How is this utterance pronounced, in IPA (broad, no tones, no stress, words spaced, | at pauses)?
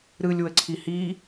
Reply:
ɾɯlʲ wəǀʰihi